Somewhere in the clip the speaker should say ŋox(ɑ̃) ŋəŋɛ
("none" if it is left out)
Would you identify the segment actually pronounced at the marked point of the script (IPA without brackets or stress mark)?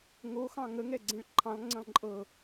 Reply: ɑ̃